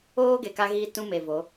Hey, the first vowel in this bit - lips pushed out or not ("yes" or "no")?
yes